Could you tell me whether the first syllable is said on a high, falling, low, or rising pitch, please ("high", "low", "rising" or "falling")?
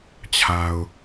low